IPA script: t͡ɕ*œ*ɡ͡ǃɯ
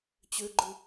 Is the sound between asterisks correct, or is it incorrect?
incorrect